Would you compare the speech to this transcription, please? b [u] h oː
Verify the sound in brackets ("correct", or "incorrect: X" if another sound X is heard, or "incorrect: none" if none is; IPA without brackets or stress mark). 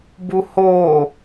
correct